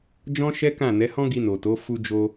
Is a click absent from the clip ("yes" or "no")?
yes